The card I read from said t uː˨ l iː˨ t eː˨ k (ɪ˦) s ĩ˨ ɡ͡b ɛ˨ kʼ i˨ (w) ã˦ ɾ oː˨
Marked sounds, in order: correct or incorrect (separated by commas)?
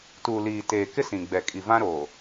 correct, incorrect